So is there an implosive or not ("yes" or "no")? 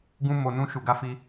no